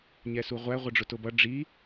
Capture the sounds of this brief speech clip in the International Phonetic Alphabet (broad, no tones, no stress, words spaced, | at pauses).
ɲɛsuʁʷæ ʁʷʌɖ͡ʐʊtʊbʌ ɖ͡ʐi